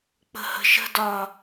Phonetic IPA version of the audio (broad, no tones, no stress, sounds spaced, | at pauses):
k͡p ə̤ h ə̤ ʃ ə̤ d ɒ